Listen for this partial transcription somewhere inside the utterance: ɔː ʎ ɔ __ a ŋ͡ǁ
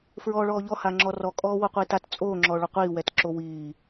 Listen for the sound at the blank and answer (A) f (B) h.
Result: B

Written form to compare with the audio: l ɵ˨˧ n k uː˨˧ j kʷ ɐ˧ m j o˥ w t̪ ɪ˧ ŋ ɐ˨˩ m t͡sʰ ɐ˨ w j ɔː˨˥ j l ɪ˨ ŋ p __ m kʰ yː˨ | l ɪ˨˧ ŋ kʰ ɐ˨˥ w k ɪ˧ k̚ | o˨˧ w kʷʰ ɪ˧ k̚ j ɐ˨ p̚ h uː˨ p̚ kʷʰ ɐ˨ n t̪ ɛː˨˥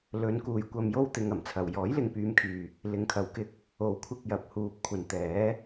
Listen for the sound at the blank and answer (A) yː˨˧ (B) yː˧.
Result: A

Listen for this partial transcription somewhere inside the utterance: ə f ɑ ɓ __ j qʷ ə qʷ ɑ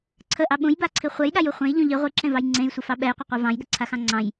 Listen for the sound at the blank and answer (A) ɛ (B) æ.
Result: A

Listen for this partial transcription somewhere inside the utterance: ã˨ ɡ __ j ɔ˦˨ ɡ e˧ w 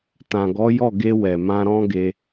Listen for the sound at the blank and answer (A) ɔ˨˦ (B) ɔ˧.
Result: A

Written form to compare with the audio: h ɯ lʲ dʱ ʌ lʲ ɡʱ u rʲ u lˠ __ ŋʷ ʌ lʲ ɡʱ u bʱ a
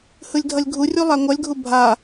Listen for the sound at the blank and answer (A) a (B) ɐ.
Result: A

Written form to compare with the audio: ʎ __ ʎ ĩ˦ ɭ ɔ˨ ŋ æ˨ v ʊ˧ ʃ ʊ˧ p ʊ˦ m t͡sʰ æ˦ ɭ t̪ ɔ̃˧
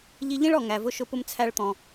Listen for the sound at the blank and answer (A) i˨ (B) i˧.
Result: B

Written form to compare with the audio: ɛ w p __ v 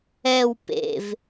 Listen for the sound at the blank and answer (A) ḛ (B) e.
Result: A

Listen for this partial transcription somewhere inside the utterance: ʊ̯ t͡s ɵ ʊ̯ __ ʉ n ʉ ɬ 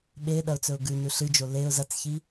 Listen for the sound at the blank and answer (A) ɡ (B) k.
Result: A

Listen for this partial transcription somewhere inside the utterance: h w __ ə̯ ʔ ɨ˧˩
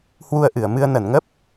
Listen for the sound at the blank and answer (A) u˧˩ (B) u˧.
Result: B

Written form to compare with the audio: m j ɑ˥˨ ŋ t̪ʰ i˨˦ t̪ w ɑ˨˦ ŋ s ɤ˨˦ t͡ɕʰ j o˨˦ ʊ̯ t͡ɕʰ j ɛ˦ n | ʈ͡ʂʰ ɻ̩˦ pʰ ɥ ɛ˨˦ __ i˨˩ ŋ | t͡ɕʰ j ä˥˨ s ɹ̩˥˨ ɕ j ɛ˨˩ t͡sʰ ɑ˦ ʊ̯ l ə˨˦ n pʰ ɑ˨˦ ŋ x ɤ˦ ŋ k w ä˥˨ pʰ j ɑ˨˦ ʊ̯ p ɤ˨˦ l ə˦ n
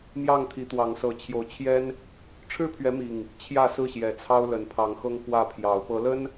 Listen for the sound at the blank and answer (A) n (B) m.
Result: B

